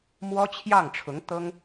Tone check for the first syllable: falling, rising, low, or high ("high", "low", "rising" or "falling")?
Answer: high